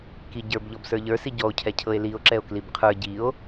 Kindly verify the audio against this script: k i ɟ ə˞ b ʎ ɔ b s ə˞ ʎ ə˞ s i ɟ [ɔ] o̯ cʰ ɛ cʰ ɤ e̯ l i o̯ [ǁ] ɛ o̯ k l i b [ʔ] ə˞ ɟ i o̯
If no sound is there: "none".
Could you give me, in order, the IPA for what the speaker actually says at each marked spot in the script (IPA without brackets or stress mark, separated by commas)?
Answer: ɔ, ǁ, qʰ